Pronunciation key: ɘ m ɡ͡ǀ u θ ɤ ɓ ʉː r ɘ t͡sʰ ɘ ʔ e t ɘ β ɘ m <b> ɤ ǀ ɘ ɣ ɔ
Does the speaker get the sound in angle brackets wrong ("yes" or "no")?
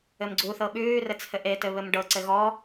yes